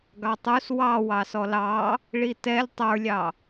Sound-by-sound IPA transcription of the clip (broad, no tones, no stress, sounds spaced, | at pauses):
ɡ ɑ tˤ u s w ɑ w ɑ s ɔ l ɑ | ɭ i t ɛ lʲ tˤ ə˞ lʲ ɑ